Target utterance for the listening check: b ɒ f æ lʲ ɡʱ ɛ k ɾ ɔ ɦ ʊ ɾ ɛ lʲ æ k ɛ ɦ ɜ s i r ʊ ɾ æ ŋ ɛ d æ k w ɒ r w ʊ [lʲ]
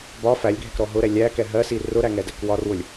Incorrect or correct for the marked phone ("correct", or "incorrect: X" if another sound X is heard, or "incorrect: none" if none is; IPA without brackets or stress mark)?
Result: correct